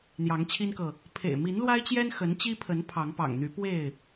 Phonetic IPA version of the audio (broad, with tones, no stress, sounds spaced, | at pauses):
n̪ j ɑ˨˦ ŋ t͡ɕʰ i˦ n k ɤ˨ | pʰ ḛ˨˩ ɪ̯ m i˨˦ n l w a˦ ɪ̯ t͡ɕ j ɛ˦ n x ə˨˦ n t͡ɕ i˦ pʰ ə˨˦ n pʰ ɑ˨˦ ŋ p ɑ̰˨˩ ŋ n̪ y˨˦ p w e˥˨ ɪ̯